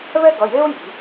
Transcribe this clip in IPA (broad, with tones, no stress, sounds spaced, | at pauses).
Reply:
β ɛ˦ ɡ ʌ˩˧˩ j e˦ ʊ̯ j i̤˩˥